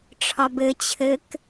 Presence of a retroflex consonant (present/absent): present